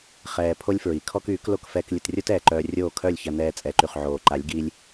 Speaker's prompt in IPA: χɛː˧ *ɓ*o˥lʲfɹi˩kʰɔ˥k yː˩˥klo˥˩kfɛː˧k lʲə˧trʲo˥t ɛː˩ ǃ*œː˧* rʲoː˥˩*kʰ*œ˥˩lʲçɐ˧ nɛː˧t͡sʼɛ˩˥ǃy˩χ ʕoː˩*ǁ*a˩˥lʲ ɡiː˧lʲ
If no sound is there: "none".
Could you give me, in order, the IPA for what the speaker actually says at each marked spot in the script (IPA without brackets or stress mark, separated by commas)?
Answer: pʰ, œː˧, kʰ, ǃ